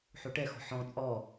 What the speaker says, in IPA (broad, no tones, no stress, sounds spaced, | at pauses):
ħ o ʈ ɛ x ɔ̤ ħ ɔ̃ t͡sʼ ɔ